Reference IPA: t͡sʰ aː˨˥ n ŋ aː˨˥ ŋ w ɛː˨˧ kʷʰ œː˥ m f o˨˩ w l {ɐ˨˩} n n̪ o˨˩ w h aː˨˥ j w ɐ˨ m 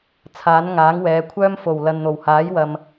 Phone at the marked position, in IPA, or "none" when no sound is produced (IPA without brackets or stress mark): ɐ˨